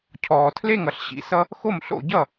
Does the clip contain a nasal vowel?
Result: no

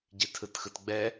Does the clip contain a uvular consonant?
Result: no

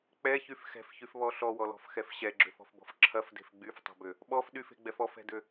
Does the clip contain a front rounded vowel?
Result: yes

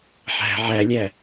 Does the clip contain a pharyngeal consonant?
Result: yes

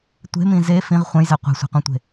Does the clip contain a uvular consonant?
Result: yes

